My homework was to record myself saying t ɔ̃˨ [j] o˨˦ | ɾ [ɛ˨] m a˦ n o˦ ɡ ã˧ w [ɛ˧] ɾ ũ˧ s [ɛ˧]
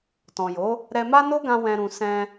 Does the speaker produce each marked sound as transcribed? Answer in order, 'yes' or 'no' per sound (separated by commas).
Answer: yes, no, no, no